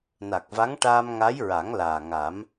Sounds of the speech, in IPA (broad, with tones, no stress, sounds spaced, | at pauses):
n a˨˩ k̚ v a˧˥ ŋ ʈ aː˧ m ŋ a˧˥ j ɹ a˨˩˦ ŋ l aː˨˩ ŋ a˨˩˦ m